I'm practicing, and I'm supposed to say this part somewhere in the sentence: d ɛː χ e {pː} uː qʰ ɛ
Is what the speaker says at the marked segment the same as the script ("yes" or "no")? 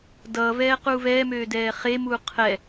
no